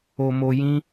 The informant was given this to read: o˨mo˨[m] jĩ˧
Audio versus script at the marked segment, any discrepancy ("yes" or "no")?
yes